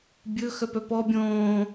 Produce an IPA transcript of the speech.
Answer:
bʲɵ xœpœpɔ bʲõː

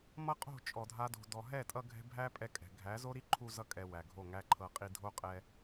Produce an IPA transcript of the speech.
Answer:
mʌ˦qʼo̤˦˨ t͡ʃʼɔ˨ dʱa˦do̤˧dɔ˧ ɦɛ˦˨tʼʌ˧ ɡʱɛ̤˦ bʱæ˦pʼɛ˧kʼɛ̤˨ ɡʱæ˨˦zo˦ ɾi˦ǃʰu˧zʌ˧ kʼɛ˨ wæ˨ɡʱo˦˨ŋæ˦ǃʰɤ˧ qʼi˧dʱo˦qʼɛ˧

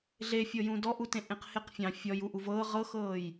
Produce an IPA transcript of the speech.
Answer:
ɮefʲɤjũ dɔʔutẽʔẽq heqfʲɑ̃ fʲɔju ʔuvɤː ʁɤxɤːj

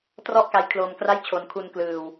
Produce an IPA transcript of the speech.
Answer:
trɔ˥˩ʔka˦˥j kʰloː˧mkra˥˩jt͡ɕʰo˧n kʰu˧n klɯː˧w

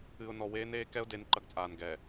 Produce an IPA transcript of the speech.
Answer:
ɨ˨ʊ̯nɔ˨weː˦neː˦ kɛ˦ʊ̯de˨˦n ǃɐ˦ɡt͡sʼaː˨n ɡɛ˨

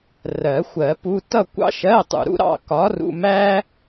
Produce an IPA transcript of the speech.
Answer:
rɜ˨˩˦xʷɜ˨˩˦pu˧˥˧ tʌ˥˧kʷɑ̰˥ʃɜ˧˥˧tˤṵ˨ ɾṵ˥ɾɑ̰˥˧ kɒ˨˥rṵ˧˥˧mæ˥

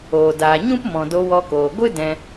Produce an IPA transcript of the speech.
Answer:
oː˨daː˨ɲũ˦pmɔ̃˨ do˧wɔ˧koː˨ ɡʷɨ˦ dɛ̃˧

